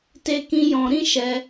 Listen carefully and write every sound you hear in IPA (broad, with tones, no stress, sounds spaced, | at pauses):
t e˧ k ĩ˧ j ɔ̃˧ ɾ ĩ˦ ʃ ɛ˧